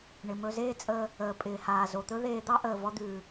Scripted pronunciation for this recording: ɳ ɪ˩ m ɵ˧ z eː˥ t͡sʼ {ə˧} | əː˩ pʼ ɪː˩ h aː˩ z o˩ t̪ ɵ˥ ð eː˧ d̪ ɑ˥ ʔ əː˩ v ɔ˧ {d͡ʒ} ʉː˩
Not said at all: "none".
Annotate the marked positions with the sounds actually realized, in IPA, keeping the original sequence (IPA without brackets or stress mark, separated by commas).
əː˧, d̪